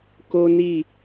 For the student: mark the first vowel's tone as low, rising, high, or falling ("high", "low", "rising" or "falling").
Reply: high